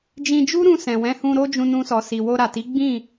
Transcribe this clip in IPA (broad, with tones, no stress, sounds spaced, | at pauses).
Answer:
d͡ʒ ĩ˧ d͡ʒ u˦ ɾ ũ˧ s ɛ̃˨ w ɛ̃˨˦ h ũ˧ ɾ o˦ d͡ʒ ũ˧ n ũ˧ s ɔ˨ s i˨ w o˧ ɾ a˨ t i˨˦ ɡ͡b ĩ˦˨